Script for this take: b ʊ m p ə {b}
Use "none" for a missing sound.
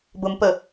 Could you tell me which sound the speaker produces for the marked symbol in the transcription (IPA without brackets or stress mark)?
none